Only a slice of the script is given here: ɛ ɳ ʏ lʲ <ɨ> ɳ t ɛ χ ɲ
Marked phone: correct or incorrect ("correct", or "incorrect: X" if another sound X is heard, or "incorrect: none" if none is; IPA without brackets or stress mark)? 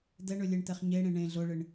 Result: incorrect: e